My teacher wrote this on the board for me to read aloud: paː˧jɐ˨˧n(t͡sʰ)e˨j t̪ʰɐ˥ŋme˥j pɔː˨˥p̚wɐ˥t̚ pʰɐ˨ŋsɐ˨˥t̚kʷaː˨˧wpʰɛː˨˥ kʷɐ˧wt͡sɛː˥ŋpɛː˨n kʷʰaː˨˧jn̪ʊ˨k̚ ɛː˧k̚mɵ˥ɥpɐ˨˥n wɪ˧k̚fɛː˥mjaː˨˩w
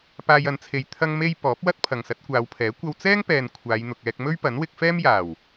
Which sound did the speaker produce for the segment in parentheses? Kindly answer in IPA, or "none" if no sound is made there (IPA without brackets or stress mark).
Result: t͡sʰ